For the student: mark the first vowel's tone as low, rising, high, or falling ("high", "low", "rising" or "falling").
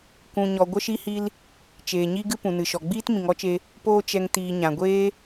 low